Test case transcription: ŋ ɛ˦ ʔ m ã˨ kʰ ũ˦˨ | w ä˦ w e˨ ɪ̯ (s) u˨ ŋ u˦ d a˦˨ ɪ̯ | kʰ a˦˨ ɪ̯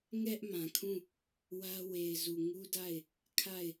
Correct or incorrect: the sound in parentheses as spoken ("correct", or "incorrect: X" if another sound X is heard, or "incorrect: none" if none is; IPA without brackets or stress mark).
incorrect: z